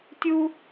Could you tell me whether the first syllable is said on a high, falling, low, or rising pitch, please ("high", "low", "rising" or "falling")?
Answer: high